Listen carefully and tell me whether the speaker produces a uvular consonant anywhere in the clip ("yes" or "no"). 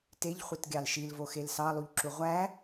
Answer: yes